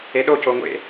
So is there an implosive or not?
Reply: yes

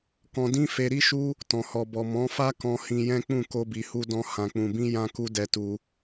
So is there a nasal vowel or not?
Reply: yes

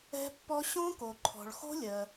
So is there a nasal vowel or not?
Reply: yes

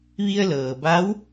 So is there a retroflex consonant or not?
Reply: no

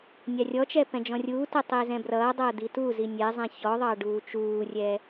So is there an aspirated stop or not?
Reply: no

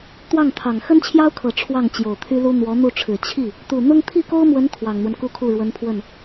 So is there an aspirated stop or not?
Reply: yes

